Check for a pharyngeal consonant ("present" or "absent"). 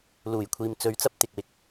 absent